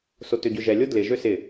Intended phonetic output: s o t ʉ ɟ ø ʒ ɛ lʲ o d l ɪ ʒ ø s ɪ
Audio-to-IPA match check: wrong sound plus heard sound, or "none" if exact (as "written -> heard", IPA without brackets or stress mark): ʉ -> ø